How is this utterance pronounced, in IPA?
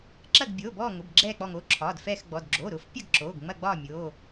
ǁɐ˦˨ɡbʲoː˩˧˩bɔː˦˨ŋʊ˩˧˩b ɡ͡ǁɛː˦˨k͡pɔ˦˨ŋo˩˧˩ǁʰɒː˩˧˩d fɛː˦˨xɡ͡bɔ˩˧˩d ɡ͡ǁoː˩˧˩ɾʊː˦˨fpʲɐ˦˨ɡ ǁoː˩˧˩ɡŋ͡mɐ˦˨ɡ͡bɒː˦˨ mʲoː˩˧˩

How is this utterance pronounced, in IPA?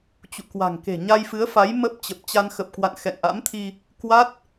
t͡ɕṵ˧˨kwa̤˨˩ŋ ke̤˨˩ɲa˧jfɨ˨˦ə̯fa˨˦j mə˦˥p̚t͡ɕə˨˩p̚ t͡ɕa˧nxə˨˩p̚kwa̰˧˨n xɛ̰˧˨ŋʔa̰˧˥mt̪ʰi˧ | kwa˦˥t̚

